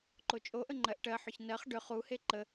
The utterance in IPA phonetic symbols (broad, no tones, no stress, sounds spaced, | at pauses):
ǃ o t͡ʃʼ o ʔ ə ŋ͡ǃ ɜ ʔ ʈ ɜ ħ ʏ ç n ɜ χ ɖ ʏ χ u h e ǃ ə